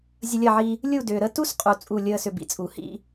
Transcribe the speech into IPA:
zʲ ə˧ lʲ ɐ˦˨ ʕ i˧ | lʲ u˦˨ d ʏː˨ ɾ ə˧ t u˦ s qʼ u˨ t͡sʼ u˦˨ lʲ əː˦ s ʏ˧ b ḭ˨ t͡sʼ u˨ h ḭ˦

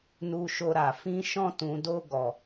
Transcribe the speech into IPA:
n u˧ ʃ o˧ ɾ a˨ f ĩ˧ ʃ ɔ̃˧ t ũ˨ d o˧ ɡ ɔ˨

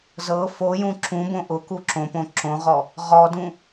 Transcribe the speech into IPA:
z ɤ f o j ũ ǁ ũ b õ ʔ ʊ k u ǁ õ p õ ǁ õ ʁ ɔ | ʁ ɔ d ũ

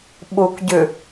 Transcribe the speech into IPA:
ɓ u k ɟ ʉ

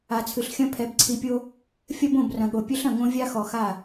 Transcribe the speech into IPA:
a˨ t͡sʰ ɨ˨ ɬ xʲ ɐ̃˦ pʰ ɛ˨ b ǀʰ i˨ pʲ o˦ | fʲ ɐ˦ b õ˦˨ b r ɐ̃˨ ɠ o˨ pʲ ɘ˦ ɬ ɐ̃˨ ŋ õ˦ vʲ a˦ x ɔ˨ x a˦˨

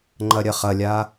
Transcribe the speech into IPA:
ŋ͡ǃ ɐ ɾʲ ɐ χ ɐ lʲ a

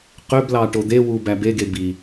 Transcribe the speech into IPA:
q ø b l ɑ ʈ o d̪ e w u b æ b e ɡ e b i

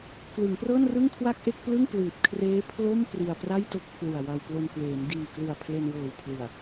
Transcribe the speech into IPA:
k l ɯ˩˦ ŋ p r ɤː˥˩ n r ɯ˥˩ ŋ kʰ w a˥˩ k̚ ʔ e˥˩ k̚ p l ɯ˥˩ ŋ p l ɯː˨˩ p̚ kʰ r eː˦˥ pʰ l o˥˩ m p r i˧ a̯ p r a˥˩ j t o˥˩ k̚ pʰ l u˨˩ a̯ w a˧ w p l o˧ n k w eː˩˦ m d iː˨˩ k l u˨˩ a̯ pʰ l e˧ n w ɤː˨˩ w pʰ l ɯ˨˩ a̯

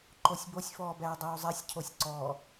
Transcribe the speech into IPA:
ǃ o sʲ b o sʲ f ɔː b ɛː dˤ uː zˤ ɛ sʲ cʰ o sʲ ǀ ɔ

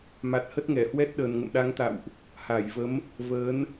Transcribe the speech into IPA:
m a˨˩ t̚ h ə˦˥ t̚ ŋ ɛ˧˩ h w ɛ˦˥ t̚ ɗ əː˨˩ n ŋ ə̰˧˨ m ɗ a˨˦ ŋ t̪ a̰˧˨ w ʔ | h aː˧˩ j v ə˨˦ m | v əː˨˦ n

